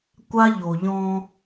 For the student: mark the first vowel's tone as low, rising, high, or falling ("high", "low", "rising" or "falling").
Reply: high